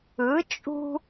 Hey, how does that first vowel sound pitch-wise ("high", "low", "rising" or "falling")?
rising